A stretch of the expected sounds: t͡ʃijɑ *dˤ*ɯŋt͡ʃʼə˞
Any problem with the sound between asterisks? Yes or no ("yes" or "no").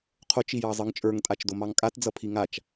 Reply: yes